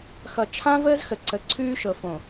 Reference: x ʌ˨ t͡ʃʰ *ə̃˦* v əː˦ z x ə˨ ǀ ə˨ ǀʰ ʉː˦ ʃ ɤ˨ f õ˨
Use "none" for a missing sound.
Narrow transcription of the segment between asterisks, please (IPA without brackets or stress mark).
ã˦